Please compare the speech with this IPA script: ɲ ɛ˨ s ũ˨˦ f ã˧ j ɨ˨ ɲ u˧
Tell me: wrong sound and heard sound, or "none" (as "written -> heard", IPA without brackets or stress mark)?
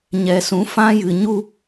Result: none